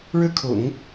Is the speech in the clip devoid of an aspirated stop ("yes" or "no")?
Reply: no